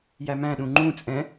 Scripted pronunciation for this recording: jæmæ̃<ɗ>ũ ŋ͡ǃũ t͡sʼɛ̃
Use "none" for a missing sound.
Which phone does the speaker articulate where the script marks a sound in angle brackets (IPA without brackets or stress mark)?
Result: ɗ